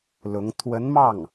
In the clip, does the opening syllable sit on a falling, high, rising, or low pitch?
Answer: rising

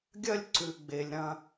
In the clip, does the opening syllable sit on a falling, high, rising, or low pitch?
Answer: high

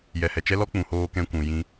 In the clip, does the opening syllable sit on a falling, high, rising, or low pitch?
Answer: low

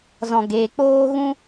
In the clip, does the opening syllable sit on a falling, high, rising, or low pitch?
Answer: low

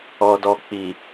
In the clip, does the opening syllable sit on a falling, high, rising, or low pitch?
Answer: low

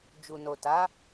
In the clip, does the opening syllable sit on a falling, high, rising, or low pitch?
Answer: low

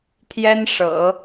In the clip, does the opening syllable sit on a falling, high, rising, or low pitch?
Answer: high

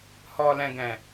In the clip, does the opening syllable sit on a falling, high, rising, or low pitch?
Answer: low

